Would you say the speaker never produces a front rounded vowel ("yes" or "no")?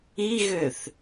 no